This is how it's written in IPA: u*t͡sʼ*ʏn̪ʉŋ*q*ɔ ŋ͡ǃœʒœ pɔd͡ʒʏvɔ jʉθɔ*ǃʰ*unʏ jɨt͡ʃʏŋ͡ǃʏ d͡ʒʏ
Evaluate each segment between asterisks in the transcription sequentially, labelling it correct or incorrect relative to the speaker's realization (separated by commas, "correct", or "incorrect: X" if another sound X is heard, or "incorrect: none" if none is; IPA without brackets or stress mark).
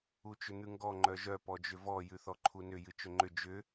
incorrect: t͡ʃ, incorrect: ɡ, correct